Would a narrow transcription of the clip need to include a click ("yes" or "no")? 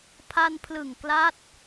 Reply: no